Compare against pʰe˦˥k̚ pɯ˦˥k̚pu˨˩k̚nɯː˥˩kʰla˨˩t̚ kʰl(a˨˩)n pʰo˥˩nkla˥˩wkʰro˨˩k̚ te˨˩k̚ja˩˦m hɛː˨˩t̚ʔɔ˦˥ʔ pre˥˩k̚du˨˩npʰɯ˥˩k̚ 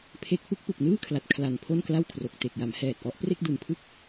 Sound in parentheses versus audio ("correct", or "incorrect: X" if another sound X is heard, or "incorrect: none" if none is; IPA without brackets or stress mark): correct